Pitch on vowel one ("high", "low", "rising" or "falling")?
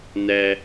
low